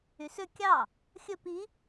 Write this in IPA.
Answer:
y s ø kʲ ɑ | xʲ ɵ p i

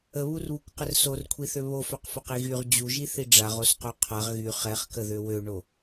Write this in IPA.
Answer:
ə β u r β u kʷ q ə r s o r kʷʰ i θ ø β o f œ q f œ q i ɣ y ʁ d͡ʑ u ʒ i θ i ɖ͡ʐ a ʁ o s q o qʰ a ʁ ɣ y χ ɛ χ k ə ð ø w ø ɳ o

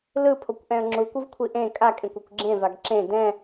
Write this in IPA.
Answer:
l ɯ pʰ o kʷ ʔ ɛ̃ ə̯ ŋ͡ǁ u kʷ ɯ v kʷʰ i ʔ ẽ kʼ a kʼ ẽ kʷ ɛ kʷ ɡ͡ǁ ẽ v a ɡ ǁ ẽ d ɛ̃

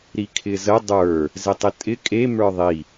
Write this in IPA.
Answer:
ɾ i kʰ ɪ z ə dˤ ə˞ | z ɪ tˤ ɪ tʼ ɪ kʼ e m ə˞ ðˤ i

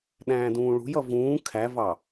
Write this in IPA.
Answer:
ɗ æ̃ː d ũː ɭ ṳ j ʌ v ũː kʰ æ v ɑ

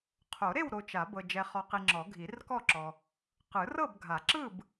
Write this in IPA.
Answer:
qʰ o˨˩˦ ɾ e˥˨ w ɾ o˨ t͡ʃ a˨˩˦ b ɤ˨ d͡ʒ ɛ˨ χ ɔ˨ q i˨ ŋ͡ǁ ɔ˨˩˦ ɡʱ i˨˩˦ r k ɔ˥˨ ǁ ɔ˨ | q ɯ˨˩˦ r ɤ˥˨ b ɡʱ a˨˩˦ ǁ ɯ˥˨ b

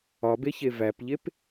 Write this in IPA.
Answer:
ɒ b e ç e v æ p ʎ e p

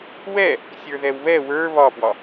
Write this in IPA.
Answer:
w ɛ | sʲ ə˞ ð ɛ w β ɛ w ə˞ β ɒ p w ɒ

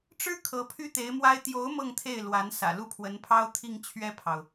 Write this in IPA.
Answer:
ʈ͡ʂ ɻ̩˥ kʰ ɤ˧˥ pʰ y˥ t̪ e˧˥ ɪ̯ m w a˥ ɪ̯ t̪ j o˧˥ ʊ̯ m ɤ˥˧ ŋ t̪ʰ e˥˩ ɪ̯ l w a˧˥ n s ä̰˨˩ l u˥˩ pʰ w ə˧˥ n pʰ ɑ˥ ʊ̯ t̪ʰ i˥˧ ŋ t͡ɕʰ ɥ ɛ˥˩ pʰ ɑ˩ ʊ̯

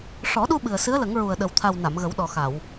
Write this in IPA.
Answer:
ʂ ɔ˨˩˦ ɗ u˧ ɓ ɨ˨˩ ə̯ s ɨ˧˥ ə̯ l ə˨˩˦ ŋ ɹ u˨˩ ə̯ ɗ ə˨˩ w t̪ʰ a˨˩ w n a˨˩˨ m ɣ ə˨˩˦ w ɗ ɔ˨˩ x a˨˩˨ w

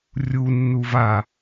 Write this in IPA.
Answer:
rʲ u nː u v a

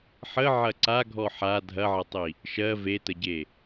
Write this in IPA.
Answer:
ħ ə ʕ ɐ ǀ a ɡʱ ɔ ħ a dʱ ɐ ʕ ɐ tˤ i | ʃ ɜ v e t ə ɟ e

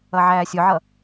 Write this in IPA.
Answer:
ʌ ʕ æː sʲ ʊ ʕ ʌ

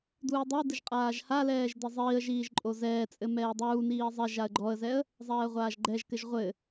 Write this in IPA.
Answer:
d uː dˤ o ə̯ d ɨ ʒ qʼ aː ʒ h a l ɛː ʒ d e zˤ iː ə̯ ʒ iː ʒ ǃʼ o z ɛː t͡sʼ ɘ m ɛː dˤ uː n iː zˤ ɛ ʒ a ə̯ ɡ͡ǃ ɔ ə̯ z ɛ ə̯ | zˤ ɛː ə̯ ʁʷ aː ʒ ɡ͡ǃ ɛ ʒ k ɘ ʒ ʁʷ ɘ

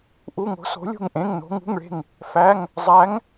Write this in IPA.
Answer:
ʔ u˧˥˧ ŋ o̤˧˥ s o̤˧˥ lʲ ṳ˥˨ ŋ ʔ ẽ˧˥˧ ŋ n o̤˧˥ ŋ ṳ˧˥˧ ŋ ɭ e̤˥˨ ŋ | f æ˧˥˧ ŋ | zˤ æ˧˥ ŋ

